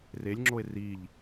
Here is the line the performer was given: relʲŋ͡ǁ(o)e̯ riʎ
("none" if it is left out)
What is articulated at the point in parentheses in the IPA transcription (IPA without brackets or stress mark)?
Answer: o